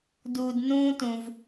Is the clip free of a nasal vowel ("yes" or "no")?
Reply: no